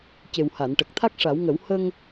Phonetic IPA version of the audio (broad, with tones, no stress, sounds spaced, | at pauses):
c e˨˩ w h a˨˩˨ n ʈ ə˨˩ k̚ t̪ʰ a˦˥ k̚ ʂ a˨˩˦ w ŋ ə˨˩˦ w h ə˧ ŋ